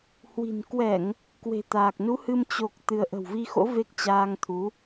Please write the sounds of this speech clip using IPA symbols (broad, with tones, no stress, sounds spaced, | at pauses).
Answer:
h w i̤˨˩ n k w ɛ˧˩˨ ŋ | k w e̤˨˩ t̪ aː˨˩ k̚ n u˨˦ h ɨ˧ m t͡ɕ o˨˩ k̚ t̪ ɨ˧ ə̯ ʔ ə̤˨˩ w v i˧ x o̰˧˥ v e˦˥ k̚ t͡ɕ aː˧ ŋ t̪ʰ u˨˦